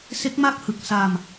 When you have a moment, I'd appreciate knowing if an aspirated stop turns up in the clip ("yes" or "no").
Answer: no